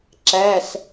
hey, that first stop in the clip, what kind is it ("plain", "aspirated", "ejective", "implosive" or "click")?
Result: click